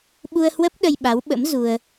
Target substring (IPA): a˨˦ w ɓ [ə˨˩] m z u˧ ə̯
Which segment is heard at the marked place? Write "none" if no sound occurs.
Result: ə̰˧˥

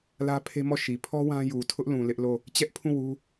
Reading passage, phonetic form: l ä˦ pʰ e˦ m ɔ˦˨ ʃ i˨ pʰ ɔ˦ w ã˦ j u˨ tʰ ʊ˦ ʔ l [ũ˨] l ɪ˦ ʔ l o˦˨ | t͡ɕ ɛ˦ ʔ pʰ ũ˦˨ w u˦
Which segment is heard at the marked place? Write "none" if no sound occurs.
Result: ũ˨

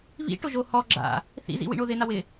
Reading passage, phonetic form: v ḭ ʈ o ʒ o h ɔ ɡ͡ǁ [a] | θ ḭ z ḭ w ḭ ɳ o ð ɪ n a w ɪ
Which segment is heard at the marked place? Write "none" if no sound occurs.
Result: a̰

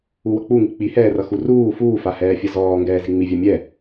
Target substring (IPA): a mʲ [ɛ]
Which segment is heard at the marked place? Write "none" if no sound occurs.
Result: ɛ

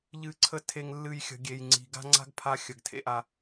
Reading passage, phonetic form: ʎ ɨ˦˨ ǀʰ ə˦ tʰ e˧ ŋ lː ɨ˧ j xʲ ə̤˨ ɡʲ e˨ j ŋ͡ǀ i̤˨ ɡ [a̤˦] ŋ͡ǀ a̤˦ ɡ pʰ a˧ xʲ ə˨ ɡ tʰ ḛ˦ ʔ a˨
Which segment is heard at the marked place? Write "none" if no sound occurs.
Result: a̤˦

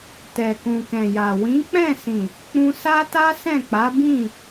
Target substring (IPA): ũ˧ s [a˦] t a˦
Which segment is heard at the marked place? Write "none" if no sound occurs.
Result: a˦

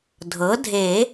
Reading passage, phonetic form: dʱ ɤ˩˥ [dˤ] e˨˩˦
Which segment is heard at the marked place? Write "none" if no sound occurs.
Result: dʱ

